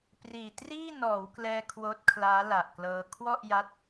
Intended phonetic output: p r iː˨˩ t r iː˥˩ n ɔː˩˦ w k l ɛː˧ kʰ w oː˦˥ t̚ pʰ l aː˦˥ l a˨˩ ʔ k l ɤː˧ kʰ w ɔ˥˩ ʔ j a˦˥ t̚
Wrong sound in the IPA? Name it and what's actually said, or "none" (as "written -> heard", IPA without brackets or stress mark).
pʰ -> kʰ